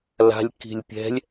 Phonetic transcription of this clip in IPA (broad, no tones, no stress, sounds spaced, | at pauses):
l a̤ lʲ k i̤ lʲ pʲ ɛ̤ lʲ